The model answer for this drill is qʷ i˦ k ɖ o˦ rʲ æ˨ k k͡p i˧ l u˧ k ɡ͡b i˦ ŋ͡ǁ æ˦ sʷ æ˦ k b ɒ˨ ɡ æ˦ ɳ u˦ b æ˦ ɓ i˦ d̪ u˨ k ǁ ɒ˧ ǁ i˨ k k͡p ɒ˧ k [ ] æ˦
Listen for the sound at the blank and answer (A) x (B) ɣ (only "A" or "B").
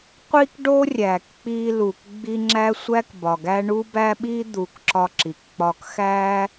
A